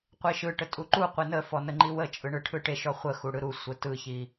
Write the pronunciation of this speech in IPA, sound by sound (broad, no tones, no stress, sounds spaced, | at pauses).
qʷ e ʃ ɯ ʈ ə tʼ u ǃ u qʷ e n ə f ɔ n ə ŋ͡ǃ i w ə t͡ʃʼ ɯ ɳ ɯ ʈʰ ɯ ʈ e ʃ ɔ χʷ ə x u ɽ ɯ ɾ u sʷ ə t ɯ ç i